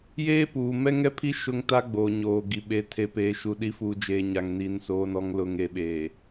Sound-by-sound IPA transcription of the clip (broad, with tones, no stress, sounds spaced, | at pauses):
j eː˦ p uː˨ m ɛ˦ ŋ ɛ˦ pʰ i˦ ʃ ʊ˦ ŋ t a˦ ɡ͡b oː˨ ɲ oː˨ ɡ i˨ ɓ e˨ tʰ e˨ p eː˨ ʃ u˨ ɗ i˨˦ f uː˨ d͡ʒ eː˨ ɲ a˨ ŋ n iː˨ n s oː˨ n ɔ˨ ŋ l ʊ˨ ŋ e˨ ɓ eː˨